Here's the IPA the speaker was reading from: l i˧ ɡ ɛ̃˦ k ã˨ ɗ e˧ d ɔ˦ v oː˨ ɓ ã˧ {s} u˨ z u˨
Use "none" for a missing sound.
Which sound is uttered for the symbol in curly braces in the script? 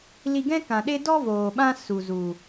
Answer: s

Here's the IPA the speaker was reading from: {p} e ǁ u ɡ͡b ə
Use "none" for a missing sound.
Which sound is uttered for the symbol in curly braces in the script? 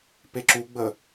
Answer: p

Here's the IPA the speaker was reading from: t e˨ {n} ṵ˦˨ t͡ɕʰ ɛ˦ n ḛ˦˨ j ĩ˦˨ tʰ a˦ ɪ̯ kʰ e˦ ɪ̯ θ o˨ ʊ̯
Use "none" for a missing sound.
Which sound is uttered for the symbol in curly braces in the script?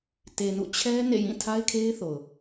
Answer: n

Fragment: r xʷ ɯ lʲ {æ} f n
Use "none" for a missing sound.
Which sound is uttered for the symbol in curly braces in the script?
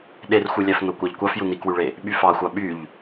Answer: æ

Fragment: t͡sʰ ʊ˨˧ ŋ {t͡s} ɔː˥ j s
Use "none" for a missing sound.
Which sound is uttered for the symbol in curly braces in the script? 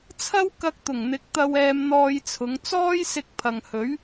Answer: t͡s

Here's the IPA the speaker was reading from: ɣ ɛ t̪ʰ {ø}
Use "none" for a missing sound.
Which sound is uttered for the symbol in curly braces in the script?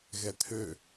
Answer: ø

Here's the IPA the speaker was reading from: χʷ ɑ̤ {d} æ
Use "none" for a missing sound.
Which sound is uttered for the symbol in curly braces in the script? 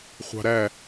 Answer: ɾ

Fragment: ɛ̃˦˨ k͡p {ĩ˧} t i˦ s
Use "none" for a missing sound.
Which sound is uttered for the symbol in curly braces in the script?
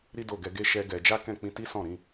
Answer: ĩ˧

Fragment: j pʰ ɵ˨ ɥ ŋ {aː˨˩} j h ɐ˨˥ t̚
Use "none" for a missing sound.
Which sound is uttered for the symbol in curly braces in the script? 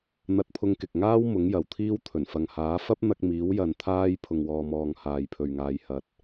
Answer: aː˨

